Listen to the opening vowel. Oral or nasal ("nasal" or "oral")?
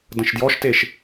nasal